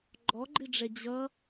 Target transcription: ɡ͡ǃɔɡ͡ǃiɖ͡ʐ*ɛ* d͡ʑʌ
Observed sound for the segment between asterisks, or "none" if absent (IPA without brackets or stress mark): ɛ